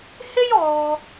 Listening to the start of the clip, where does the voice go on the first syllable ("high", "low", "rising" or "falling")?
high